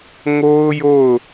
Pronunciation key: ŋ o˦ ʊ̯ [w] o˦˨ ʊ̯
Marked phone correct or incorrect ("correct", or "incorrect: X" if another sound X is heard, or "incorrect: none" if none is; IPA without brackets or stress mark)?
incorrect: j